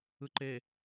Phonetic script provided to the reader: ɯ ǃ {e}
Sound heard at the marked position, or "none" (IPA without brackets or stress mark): e